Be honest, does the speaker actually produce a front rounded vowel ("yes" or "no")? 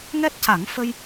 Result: no